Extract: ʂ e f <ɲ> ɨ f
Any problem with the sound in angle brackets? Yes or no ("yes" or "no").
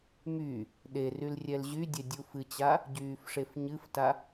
no